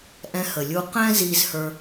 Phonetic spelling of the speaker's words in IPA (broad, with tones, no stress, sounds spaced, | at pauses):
ʔ ɛ̃˧ h ə˩ lʲ u˧ q ɛ̃˥ z i˧ z h ə˞˧